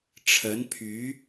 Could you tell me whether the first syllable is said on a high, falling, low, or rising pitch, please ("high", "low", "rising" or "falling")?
rising